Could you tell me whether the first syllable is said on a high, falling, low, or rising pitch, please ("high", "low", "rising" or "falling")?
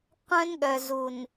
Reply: high